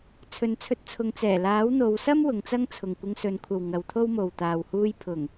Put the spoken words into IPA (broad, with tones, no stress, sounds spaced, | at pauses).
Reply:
t͡sʰ ɵ˨˧ n t͡sʰ ɵ˧ t̚ t͡sʰ ʊ˨˧ ŋ t͡s ɛː˨˩ l aː˨˥ w n̪ o˨˧ w s ɐ˥ m w ʊ˨˧ ŋ t͡s ɐ˥ ŋ t͡sʰ ʊ˨ ŋ kʷ ɪ˧ ŋ s ɵ˨˧ n kʷʰ ɐ˨ w ŋ ɐ˨˧ w t̪ʰ o˥ w m o˨ w t̪ aː˨ w h uː˧ j pʰ ʊ˨˩ ŋ